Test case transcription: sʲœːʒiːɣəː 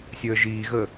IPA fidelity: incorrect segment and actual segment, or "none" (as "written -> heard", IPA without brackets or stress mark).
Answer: œː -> əː